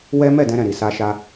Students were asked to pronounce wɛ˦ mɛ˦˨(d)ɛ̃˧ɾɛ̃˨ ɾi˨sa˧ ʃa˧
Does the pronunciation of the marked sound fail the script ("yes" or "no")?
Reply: no